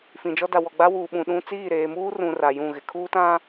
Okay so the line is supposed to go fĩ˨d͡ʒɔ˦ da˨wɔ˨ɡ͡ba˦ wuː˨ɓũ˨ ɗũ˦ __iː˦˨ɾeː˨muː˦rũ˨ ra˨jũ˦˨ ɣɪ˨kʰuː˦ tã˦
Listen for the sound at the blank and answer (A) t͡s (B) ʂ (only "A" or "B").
A